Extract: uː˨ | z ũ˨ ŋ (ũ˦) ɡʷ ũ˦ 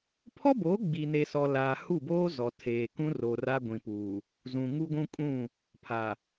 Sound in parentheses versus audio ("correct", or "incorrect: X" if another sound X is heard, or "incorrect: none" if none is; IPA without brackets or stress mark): incorrect: u˦